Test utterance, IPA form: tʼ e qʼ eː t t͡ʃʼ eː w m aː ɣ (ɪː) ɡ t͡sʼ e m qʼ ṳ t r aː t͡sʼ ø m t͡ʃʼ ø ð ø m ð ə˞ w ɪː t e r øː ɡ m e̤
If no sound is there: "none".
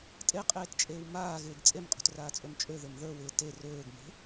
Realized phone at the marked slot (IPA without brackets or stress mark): ɪː